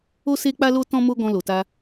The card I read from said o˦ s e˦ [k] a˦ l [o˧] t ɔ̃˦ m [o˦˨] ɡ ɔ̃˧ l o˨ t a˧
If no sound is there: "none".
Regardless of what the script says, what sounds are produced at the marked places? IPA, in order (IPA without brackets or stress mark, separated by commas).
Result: k͡p, o˦, o˦